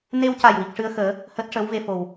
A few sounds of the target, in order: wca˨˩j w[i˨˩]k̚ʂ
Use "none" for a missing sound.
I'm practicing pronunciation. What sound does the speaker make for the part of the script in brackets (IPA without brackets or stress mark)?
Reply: i˨˩